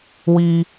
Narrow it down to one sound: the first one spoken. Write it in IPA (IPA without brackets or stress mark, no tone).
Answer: w